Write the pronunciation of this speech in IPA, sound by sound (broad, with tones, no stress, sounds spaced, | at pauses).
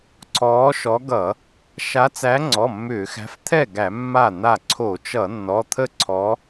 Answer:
ǀʰ ɔː˨˦ ʃ ɔ˨˦ ɡ ʌ˧˩˧ | ʃ a˨˦ t͡s æ˨˦ ŋ͡ǀ ɔ˩˧˩ mː ʏː˧˩˧ x æ̤˨˦ f t̪ʰ ɛ˥˩ ɡ æ˧˩˧ mː a˥˩ n̪ a˥˩ ǀʰ o˧˩˧ t͡ʃ ʌ˧˩˧ nː ɔ˩˧˩ t̪ʰ ə˥˧ ǀʰ ɔ˨˦